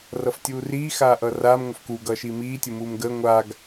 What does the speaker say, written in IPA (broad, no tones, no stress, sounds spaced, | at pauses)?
r ʌ f tʲ uː r iː x aː ʔ ʌː r aː m ŋʷ ə f k u ɡ ʌː ʃ iː m iː tʲ u m uː m ɡ əː ŋʷ a ɡ